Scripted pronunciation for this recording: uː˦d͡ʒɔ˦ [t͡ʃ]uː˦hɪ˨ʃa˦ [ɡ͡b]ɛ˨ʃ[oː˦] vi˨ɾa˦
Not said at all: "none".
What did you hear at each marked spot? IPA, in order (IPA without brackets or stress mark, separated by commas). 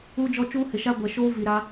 t͡ʃ, ɡʷ, oː˦